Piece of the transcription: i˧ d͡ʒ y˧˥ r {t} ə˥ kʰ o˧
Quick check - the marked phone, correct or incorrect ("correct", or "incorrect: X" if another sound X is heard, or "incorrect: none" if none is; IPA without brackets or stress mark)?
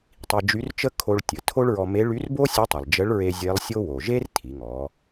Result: incorrect: t͡ʃ